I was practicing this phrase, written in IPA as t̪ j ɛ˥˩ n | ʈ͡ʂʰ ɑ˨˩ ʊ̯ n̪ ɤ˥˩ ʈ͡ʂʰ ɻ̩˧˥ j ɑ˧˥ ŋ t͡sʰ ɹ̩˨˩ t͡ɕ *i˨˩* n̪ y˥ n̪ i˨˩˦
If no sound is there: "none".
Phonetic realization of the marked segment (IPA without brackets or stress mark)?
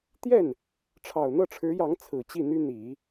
i˥˩